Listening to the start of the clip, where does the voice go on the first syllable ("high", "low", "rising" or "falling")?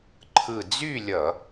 low